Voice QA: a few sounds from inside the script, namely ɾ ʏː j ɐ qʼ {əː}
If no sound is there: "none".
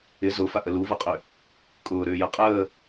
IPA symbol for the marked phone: əː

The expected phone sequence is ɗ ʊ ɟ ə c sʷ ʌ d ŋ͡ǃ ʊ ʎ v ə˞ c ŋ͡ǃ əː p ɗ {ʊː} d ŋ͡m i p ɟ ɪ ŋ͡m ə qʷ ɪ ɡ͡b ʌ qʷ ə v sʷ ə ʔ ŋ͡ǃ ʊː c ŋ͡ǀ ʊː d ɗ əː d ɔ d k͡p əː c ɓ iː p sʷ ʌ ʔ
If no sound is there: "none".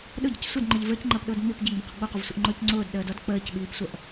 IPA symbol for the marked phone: ʊː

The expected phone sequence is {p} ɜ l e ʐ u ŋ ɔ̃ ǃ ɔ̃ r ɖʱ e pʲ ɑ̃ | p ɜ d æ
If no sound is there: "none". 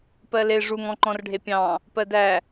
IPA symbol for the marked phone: p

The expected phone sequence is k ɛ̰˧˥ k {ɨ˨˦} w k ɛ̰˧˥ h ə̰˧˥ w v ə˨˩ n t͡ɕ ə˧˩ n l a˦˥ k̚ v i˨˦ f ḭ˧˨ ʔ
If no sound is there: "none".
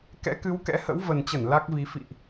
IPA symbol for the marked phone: ɨ˨˦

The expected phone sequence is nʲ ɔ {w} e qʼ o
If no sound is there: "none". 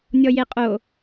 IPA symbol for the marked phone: j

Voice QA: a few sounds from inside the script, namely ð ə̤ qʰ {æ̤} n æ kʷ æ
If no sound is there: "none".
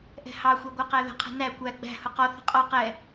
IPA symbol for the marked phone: ɛ̤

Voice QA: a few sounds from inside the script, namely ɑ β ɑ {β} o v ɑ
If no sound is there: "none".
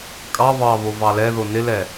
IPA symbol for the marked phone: β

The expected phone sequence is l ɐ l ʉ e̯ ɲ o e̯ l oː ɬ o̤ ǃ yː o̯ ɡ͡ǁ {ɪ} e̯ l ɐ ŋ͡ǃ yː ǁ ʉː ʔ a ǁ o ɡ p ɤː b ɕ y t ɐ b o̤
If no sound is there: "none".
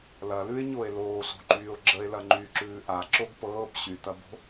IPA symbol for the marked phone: ə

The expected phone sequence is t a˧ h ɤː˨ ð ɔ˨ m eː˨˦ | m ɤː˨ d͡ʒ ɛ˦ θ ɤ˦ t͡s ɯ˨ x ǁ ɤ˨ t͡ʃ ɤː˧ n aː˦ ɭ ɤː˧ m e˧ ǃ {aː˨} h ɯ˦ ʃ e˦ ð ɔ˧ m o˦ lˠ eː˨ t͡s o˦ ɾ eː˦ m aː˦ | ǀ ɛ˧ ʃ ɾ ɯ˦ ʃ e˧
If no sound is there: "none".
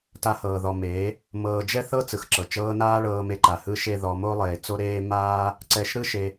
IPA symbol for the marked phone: a˨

